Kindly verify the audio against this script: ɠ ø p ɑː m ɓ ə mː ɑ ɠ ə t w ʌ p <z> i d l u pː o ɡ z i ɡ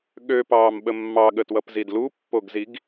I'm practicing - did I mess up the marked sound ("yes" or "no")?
no